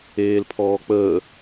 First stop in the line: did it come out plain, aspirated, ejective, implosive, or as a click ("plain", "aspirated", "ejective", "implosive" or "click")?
aspirated